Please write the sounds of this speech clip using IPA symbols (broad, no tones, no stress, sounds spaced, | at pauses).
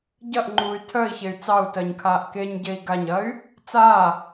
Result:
ɟ ɐ ʔ ŋ͡ǃ uː y̯ tʰ œ i̯ ç e y̯ t͡s ɑ u̯ t ɜ ɲ kʰ aː ʔ k e ɲ ɟ e i̯ ɡ a ɲ ɐ y̯ | t͡s a